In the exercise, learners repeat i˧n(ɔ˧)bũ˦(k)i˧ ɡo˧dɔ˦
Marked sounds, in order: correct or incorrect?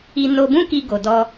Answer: incorrect, correct

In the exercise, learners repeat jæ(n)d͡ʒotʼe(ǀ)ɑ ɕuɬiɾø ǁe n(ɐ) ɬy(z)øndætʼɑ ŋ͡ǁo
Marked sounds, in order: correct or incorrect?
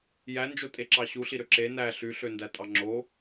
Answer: correct, incorrect, incorrect, incorrect

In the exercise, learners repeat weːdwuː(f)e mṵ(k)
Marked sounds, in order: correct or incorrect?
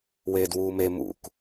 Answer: incorrect, correct

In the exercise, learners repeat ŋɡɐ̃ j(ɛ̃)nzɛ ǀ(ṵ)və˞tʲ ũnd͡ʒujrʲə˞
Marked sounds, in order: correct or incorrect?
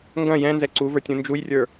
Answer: correct, incorrect

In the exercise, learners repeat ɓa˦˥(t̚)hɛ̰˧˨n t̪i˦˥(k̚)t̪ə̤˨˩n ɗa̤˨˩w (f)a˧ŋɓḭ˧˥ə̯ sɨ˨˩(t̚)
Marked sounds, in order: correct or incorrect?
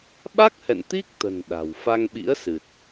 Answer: incorrect, correct, correct, correct

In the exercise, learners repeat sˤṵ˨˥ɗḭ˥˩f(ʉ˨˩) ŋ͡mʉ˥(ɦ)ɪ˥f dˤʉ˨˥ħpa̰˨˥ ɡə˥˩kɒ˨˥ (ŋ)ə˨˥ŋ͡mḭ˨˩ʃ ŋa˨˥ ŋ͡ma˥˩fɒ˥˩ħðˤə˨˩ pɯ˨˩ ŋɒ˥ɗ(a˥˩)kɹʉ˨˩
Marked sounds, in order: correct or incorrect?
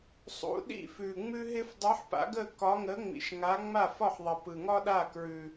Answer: correct, correct, correct, correct

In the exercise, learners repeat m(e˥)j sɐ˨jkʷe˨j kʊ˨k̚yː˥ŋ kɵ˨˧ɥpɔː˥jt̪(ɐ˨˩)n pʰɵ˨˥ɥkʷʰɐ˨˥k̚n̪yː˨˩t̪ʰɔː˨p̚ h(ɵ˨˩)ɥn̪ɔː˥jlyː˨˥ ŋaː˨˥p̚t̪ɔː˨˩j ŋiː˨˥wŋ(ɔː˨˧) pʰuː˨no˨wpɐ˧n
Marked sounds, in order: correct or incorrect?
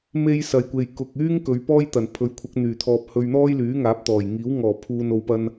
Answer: correct, correct, incorrect, incorrect

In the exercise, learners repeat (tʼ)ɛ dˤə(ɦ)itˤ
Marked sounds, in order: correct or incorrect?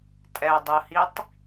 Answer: correct, incorrect

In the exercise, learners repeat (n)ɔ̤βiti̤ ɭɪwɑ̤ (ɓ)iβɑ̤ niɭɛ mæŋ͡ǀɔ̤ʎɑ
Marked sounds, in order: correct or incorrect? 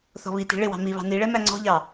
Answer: incorrect, incorrect

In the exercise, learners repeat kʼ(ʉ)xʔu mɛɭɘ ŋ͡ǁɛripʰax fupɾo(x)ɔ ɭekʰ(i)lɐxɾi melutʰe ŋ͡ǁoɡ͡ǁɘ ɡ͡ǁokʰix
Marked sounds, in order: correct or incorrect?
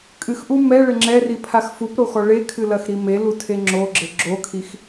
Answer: incorrect, correct, incorrect

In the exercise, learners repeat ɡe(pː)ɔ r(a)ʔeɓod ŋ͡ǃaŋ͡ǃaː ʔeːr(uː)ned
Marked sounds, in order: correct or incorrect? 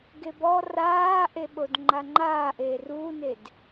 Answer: incorrect, incorrect, correct

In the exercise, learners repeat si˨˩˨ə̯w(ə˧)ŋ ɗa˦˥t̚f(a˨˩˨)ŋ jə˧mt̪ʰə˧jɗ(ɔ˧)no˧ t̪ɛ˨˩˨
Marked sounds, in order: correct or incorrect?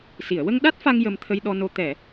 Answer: correct, incorrect, correct

